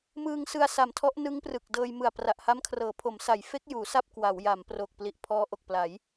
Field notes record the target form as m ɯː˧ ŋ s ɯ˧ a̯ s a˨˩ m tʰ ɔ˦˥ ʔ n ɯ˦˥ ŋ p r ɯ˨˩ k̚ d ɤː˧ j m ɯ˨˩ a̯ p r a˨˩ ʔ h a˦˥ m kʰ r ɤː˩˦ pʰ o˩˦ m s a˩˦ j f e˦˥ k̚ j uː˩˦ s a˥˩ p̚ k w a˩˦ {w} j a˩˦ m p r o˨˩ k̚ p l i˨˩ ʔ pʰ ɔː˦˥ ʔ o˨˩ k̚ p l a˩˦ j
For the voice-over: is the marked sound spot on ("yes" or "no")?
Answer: yes